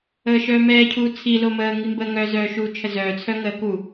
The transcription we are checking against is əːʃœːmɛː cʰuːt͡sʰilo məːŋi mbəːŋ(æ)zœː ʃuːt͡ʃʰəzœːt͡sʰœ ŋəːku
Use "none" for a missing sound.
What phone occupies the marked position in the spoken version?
œ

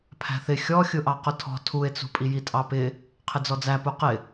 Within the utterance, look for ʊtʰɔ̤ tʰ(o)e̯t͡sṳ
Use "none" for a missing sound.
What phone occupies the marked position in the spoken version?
u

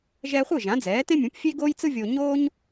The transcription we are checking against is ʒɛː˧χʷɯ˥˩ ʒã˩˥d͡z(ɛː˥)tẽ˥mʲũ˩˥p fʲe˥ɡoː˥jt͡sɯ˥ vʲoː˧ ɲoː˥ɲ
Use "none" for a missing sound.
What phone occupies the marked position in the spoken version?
ɛː˩˥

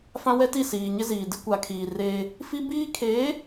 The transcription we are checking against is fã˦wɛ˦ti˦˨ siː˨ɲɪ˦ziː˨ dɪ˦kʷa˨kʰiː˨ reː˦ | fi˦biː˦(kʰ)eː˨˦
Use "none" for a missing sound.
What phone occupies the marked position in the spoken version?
kʰ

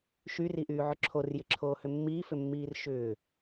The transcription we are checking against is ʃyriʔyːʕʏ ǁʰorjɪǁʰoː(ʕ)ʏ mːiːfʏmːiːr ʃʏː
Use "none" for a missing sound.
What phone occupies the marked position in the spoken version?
h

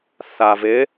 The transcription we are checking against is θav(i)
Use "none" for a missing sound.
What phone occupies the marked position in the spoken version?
ɪ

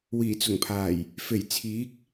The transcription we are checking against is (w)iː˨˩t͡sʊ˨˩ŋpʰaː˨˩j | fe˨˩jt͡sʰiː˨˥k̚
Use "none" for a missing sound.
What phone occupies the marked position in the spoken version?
w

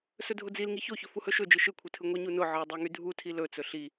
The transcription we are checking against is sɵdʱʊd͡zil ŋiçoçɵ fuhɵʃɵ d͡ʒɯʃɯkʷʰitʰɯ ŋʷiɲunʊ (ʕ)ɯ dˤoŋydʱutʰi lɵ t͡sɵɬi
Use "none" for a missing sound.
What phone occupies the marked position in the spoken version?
ʕ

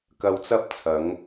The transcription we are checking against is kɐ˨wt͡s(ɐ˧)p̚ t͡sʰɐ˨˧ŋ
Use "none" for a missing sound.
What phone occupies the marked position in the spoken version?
ɐ˧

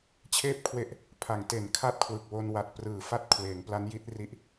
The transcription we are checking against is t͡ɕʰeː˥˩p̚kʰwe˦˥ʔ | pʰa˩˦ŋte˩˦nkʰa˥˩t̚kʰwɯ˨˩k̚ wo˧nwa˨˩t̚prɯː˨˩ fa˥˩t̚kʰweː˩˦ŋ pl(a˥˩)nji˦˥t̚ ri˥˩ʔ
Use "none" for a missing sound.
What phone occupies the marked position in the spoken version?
a˦˥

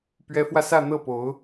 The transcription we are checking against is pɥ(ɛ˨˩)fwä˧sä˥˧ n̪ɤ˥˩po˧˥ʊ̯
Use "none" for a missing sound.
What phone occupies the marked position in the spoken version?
ɛ˧˥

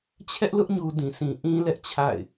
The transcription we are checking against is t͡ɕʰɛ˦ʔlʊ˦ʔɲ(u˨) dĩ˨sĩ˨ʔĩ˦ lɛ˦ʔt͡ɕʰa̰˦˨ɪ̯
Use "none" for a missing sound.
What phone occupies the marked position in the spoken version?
u˨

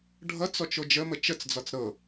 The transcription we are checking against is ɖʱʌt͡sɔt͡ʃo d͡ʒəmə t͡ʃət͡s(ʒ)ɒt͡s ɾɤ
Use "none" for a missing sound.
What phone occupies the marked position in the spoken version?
d͡z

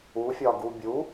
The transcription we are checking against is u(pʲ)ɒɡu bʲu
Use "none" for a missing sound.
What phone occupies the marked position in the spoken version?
fʲ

